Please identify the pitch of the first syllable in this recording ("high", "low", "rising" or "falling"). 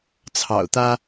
low